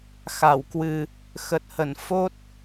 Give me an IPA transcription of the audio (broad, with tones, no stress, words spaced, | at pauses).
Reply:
xa˧˩wkwɨ˨˩ | xə˨˩t̚hə˧˩n fo˦˥t̚